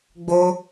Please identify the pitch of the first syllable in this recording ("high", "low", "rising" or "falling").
high